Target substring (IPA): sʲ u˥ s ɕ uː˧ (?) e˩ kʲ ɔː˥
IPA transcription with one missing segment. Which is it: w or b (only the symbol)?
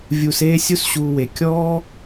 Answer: w